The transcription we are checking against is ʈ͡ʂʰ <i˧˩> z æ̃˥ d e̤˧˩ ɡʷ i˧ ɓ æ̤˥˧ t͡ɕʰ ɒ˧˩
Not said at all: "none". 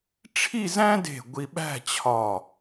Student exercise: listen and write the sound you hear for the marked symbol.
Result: i˥˧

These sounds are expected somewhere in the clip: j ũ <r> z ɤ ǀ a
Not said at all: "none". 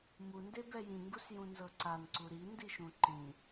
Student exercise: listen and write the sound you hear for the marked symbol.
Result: n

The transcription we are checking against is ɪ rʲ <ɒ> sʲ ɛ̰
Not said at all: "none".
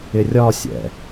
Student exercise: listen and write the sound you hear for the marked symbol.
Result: ɒ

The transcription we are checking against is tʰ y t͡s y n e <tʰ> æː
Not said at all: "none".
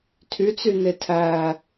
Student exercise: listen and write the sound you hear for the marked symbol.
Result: tʰ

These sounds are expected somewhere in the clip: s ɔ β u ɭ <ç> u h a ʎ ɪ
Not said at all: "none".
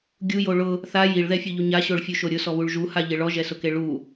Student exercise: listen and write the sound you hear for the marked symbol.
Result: ʒ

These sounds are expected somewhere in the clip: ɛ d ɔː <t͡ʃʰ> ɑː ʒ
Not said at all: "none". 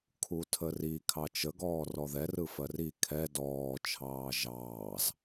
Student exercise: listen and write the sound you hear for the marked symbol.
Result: t͡ʃʰ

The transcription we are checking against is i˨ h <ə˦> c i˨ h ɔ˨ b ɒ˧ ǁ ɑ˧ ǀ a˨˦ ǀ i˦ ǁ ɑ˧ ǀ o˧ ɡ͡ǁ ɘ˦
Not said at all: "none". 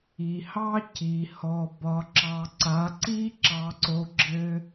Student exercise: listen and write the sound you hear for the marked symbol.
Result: ɑ˦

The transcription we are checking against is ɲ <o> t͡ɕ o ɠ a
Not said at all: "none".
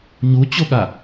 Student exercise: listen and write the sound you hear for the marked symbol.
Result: u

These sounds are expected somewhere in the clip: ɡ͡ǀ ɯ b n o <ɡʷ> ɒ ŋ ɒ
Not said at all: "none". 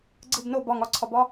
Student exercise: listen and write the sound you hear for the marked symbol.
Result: b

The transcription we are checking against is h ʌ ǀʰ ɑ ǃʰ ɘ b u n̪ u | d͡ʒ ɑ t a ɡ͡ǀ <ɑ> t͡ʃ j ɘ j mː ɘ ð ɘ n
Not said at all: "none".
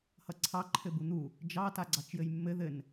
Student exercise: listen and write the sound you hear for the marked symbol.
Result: ɑ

